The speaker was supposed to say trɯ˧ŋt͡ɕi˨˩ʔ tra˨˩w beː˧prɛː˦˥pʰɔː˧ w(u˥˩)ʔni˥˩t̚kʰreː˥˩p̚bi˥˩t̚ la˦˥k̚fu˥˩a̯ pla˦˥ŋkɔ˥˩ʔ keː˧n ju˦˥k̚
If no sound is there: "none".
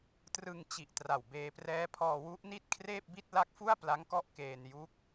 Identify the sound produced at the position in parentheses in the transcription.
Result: u˦˥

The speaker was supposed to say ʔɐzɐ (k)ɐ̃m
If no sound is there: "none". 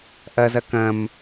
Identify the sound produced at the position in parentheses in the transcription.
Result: k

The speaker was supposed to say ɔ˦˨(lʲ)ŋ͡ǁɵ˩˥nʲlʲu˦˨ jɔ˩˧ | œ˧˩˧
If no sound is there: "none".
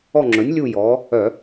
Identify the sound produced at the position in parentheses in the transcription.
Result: none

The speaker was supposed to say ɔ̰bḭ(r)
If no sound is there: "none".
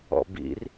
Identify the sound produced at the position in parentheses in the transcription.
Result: r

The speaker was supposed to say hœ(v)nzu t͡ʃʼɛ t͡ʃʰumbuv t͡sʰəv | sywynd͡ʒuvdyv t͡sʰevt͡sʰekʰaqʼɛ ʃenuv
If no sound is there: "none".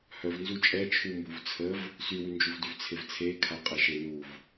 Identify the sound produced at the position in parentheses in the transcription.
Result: v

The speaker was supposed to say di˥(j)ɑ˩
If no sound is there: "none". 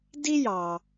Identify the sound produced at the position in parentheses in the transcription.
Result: j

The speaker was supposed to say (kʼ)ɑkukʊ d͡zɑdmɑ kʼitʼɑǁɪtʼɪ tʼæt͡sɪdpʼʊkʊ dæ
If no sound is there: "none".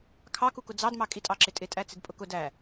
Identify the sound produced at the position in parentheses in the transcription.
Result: kʰ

